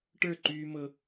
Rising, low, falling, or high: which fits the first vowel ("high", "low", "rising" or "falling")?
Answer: falling